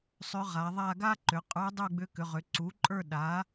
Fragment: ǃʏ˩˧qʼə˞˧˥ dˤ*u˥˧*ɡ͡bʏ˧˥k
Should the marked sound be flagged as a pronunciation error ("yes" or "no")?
no